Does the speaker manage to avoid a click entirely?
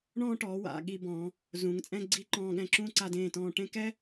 no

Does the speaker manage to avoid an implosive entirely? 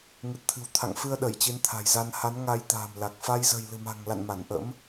no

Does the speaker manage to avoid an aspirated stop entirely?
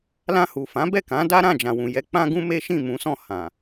yes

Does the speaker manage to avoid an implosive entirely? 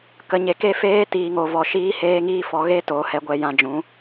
yes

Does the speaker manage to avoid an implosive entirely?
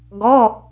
yes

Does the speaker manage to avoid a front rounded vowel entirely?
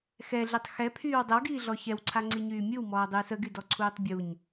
no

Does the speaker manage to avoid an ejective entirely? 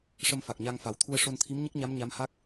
yes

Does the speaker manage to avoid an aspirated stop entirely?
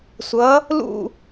yes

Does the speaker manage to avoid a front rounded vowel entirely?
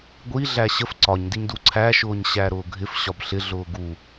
yes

